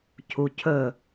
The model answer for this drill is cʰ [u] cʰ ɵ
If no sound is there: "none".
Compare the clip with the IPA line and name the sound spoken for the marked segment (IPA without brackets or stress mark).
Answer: u